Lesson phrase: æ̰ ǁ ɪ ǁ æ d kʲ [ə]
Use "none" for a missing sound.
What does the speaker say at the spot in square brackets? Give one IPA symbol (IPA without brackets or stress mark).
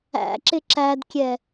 ɛ